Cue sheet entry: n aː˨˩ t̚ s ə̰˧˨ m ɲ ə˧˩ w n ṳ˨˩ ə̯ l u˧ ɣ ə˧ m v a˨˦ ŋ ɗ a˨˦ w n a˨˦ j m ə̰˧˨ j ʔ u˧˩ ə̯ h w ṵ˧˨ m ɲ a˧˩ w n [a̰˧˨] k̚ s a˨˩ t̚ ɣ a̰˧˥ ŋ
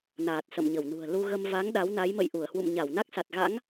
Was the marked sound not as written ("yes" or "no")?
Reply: yes